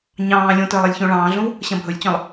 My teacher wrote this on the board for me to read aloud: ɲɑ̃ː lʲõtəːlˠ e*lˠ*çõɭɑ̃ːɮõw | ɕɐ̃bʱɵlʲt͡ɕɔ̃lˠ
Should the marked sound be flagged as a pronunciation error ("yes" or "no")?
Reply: yes